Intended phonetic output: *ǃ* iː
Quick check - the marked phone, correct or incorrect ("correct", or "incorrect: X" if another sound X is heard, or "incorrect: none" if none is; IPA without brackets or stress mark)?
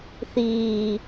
incorrect: θ